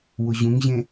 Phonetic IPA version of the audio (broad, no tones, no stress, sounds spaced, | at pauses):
w ʊ ʑ ũ ŋ ʑ ẽ